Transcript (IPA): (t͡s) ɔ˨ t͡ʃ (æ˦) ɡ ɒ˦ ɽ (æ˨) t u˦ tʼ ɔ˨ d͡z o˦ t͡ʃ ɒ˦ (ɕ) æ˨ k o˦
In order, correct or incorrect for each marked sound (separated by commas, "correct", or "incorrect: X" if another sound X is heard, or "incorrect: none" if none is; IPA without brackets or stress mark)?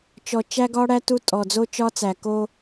incorrect: t͡ʃ, correct, incorrect: æ˦, incorrect: t͡s